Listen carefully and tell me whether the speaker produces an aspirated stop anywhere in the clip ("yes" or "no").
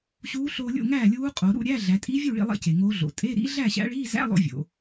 no